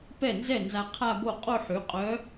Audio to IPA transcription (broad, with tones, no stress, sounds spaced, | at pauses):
p ɛ˥˩ n z ɛ˥˩ n z a˧ qʰ a˥˧ b o˥˩ qʼ o˥˧ ħ y˩˥ qʼ œ˧˥